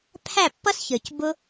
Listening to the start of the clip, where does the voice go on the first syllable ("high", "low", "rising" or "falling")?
falling